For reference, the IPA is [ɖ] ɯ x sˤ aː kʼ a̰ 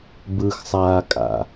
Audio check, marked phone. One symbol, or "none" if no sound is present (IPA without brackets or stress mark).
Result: b